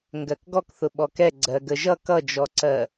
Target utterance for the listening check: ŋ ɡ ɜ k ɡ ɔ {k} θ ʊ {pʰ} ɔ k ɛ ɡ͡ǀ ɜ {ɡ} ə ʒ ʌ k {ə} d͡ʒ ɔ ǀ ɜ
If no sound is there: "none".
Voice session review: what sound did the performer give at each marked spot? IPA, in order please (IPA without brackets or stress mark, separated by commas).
k, ɓ, ɡ, ʌ